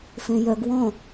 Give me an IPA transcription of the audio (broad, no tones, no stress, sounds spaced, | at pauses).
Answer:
f ẽ j œ ɡ w ɔ̃